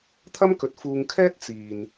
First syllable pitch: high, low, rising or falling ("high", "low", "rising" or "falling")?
high